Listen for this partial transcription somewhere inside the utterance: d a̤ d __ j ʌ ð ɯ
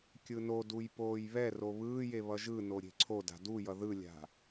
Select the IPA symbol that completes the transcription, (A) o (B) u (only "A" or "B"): B